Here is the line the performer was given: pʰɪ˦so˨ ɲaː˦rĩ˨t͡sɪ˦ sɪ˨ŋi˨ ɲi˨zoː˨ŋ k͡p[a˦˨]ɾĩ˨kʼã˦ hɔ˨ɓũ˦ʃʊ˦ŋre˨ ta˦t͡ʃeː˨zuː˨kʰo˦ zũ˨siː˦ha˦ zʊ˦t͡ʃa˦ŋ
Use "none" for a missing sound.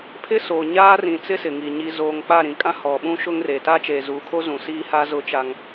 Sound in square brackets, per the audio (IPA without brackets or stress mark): a˦˨